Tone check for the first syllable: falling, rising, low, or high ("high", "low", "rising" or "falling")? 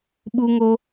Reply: high